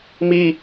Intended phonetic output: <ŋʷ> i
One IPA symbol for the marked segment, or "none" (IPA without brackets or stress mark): m